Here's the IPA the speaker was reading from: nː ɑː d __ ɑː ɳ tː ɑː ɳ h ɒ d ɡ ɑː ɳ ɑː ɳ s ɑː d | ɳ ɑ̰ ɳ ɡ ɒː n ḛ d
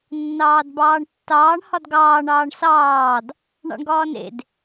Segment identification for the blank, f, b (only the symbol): b